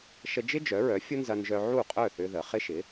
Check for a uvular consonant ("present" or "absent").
present